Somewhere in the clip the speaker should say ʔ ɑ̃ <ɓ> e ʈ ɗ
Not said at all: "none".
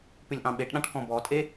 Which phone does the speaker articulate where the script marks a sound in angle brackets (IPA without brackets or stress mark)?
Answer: ɓ